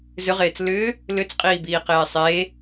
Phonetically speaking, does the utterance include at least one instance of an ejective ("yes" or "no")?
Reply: yes